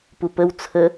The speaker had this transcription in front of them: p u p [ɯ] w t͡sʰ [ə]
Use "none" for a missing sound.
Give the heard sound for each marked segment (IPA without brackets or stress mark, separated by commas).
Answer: ə, ə